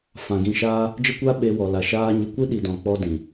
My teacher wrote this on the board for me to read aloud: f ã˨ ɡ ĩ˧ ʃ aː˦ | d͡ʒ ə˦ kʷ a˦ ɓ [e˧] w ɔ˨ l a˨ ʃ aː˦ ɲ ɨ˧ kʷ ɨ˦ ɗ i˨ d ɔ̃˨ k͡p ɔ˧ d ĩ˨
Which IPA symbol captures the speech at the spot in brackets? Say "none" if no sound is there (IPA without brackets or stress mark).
e˧